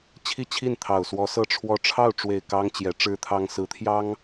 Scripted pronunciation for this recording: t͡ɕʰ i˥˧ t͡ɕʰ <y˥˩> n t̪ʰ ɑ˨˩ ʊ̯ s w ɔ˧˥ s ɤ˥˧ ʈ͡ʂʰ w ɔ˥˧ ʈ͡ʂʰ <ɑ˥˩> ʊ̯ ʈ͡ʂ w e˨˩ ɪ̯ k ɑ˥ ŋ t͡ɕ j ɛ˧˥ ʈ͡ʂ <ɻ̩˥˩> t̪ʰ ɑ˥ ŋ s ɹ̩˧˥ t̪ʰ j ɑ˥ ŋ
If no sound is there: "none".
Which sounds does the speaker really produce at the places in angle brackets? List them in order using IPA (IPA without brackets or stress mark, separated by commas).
i˥˩, ɑ˥˩, ɻ̩˥